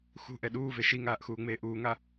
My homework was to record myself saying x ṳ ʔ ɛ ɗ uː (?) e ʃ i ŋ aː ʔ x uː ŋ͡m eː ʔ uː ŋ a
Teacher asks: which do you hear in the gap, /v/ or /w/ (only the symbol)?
v